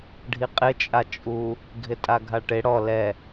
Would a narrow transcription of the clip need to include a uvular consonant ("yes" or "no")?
yes